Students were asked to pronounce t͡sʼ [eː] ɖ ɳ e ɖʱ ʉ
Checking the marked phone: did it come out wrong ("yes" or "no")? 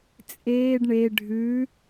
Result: no